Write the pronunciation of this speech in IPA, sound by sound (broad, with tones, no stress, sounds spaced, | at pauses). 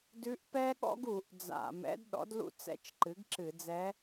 d ʉ˧˥ ʔ p ɛ˥ ɠ ɔ̰˥ ɡ u˧˩˧ ʔ d͡z a̰˧˩˧ m ɛ̰˧˥ d ɗ ɔ̰˩˥ d l ṵ˥ t͡s ɛ̰˧˥ t͡ʃ ǃ ɨ˩˥ ɡ ǁ ɨ˧˩˧ d͡z ɛ˧˥